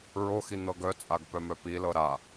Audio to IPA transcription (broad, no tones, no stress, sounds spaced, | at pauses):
ɹ o x i n̪ ɤ ɡ œ t͡sʼ a ɡ p œ m œ p i l ɤ ɾ a